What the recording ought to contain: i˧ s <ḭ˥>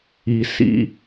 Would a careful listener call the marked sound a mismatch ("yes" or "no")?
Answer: no